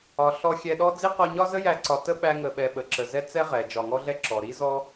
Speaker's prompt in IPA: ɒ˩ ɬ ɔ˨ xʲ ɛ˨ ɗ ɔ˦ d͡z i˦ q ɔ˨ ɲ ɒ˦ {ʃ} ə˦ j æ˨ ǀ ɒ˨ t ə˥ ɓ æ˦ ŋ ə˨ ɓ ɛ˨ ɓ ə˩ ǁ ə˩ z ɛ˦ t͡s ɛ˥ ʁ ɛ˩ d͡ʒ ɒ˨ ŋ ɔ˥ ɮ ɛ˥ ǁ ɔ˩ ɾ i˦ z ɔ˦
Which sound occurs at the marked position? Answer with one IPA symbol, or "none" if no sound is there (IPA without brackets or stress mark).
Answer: z